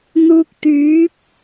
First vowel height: high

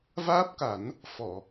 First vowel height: low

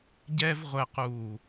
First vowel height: mid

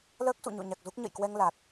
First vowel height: mid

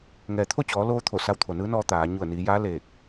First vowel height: mid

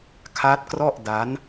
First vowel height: low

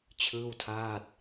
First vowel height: high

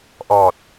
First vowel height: mid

